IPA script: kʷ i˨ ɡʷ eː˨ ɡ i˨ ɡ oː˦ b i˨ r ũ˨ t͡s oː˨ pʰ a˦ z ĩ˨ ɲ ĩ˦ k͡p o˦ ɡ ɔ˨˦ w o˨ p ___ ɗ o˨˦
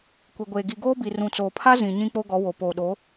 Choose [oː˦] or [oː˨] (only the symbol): oː˨